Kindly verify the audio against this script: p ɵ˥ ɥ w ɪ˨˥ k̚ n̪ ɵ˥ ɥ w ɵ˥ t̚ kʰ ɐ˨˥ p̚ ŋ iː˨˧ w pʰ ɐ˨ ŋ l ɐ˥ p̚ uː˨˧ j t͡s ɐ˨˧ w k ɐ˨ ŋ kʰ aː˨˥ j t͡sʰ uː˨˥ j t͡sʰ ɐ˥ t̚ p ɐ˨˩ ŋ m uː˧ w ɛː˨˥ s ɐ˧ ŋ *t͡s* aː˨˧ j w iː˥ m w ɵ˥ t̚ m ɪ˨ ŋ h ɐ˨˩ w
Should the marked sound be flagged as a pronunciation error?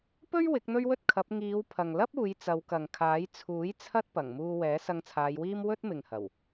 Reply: yes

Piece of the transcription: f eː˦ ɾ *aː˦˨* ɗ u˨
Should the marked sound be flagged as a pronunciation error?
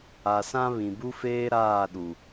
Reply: no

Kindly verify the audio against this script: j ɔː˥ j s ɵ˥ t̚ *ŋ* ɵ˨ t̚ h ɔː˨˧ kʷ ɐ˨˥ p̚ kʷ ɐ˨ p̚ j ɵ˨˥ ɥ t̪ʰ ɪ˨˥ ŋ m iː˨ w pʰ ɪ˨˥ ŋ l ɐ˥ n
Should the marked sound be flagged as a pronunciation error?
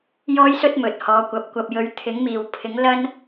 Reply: yes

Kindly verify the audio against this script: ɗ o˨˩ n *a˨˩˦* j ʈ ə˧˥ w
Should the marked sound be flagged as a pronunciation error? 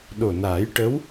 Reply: yes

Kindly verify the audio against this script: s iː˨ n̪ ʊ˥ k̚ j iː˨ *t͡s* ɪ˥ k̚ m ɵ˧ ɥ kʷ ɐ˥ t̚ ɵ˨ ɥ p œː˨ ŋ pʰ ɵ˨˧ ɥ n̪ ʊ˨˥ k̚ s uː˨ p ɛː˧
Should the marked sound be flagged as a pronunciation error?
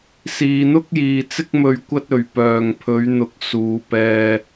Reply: no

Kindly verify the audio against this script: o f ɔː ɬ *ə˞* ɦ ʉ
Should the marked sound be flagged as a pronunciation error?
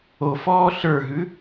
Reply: no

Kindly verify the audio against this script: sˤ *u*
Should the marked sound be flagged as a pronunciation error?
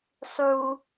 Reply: no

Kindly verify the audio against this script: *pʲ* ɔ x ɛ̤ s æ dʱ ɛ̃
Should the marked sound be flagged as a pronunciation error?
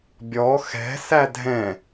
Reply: yes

